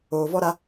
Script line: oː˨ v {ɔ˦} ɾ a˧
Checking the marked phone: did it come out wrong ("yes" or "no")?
no